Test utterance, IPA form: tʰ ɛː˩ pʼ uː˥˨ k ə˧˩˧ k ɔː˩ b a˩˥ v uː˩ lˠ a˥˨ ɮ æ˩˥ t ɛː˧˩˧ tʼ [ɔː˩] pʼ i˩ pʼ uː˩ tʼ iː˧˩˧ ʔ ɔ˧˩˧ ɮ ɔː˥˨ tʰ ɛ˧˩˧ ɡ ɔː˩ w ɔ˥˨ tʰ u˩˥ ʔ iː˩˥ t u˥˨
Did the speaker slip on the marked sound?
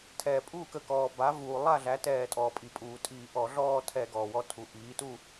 no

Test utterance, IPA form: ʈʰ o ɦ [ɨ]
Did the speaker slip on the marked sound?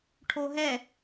yes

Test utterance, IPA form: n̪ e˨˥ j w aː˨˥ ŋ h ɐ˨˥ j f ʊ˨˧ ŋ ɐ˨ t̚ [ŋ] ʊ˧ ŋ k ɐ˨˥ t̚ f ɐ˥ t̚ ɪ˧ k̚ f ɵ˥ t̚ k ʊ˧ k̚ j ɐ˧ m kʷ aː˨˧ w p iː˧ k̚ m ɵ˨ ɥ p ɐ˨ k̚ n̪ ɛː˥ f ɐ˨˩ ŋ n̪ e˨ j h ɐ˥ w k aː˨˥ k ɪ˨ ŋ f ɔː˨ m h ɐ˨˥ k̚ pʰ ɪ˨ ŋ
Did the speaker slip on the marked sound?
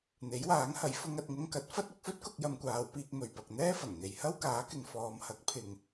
no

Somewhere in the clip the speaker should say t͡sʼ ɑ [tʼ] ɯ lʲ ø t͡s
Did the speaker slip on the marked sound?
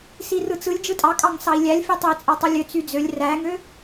yes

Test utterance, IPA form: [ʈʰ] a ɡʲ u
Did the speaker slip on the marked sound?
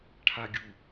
no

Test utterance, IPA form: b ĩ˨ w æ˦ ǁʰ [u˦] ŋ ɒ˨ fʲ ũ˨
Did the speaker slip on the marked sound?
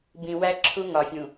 no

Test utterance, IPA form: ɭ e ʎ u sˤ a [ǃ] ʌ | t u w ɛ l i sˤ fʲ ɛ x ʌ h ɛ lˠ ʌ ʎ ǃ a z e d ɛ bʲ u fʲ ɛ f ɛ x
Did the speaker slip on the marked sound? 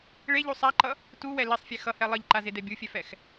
no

